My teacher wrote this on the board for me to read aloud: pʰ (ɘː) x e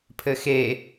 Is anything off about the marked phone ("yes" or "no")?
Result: yes